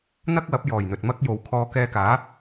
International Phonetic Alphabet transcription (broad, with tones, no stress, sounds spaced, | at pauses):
n̪ ɐ˥ k̚ w ɐ˨˥ p̚ j ɔː˨˩ j n̪ ɵ˨ t̚ m ɐ˥ k̚ j o˨ w kʰ ɔː˧ k ɛː˧ k aː˨˥